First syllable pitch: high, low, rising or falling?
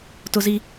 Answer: high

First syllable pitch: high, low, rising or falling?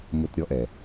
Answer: low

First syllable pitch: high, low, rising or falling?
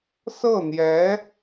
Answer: falling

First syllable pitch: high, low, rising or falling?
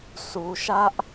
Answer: low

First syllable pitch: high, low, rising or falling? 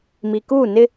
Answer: low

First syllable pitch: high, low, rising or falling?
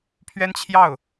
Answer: high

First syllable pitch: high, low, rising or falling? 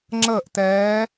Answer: falling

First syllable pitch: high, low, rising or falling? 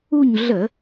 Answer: falling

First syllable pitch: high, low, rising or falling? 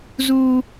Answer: high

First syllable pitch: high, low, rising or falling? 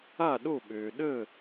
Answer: falling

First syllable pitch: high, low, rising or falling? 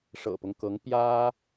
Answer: low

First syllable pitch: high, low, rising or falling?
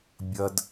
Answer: high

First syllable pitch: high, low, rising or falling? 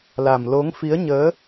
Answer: low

